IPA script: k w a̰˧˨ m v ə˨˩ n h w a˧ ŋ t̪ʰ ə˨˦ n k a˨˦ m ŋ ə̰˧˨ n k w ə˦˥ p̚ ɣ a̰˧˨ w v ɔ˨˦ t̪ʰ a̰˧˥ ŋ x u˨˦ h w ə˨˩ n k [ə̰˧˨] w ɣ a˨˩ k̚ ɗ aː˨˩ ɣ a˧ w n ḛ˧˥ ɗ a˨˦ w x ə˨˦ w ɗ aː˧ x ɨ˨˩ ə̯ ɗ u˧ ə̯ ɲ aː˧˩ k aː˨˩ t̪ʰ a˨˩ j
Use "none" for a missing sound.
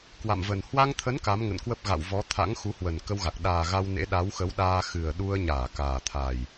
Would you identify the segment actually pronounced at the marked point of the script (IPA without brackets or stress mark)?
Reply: ə˧